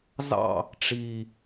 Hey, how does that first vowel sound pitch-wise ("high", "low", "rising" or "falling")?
falling